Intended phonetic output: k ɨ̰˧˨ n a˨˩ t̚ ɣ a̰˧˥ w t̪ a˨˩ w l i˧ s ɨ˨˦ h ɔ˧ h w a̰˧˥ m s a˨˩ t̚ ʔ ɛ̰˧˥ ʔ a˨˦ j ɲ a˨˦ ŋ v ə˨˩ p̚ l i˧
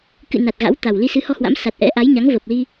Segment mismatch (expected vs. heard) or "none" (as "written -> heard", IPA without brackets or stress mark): none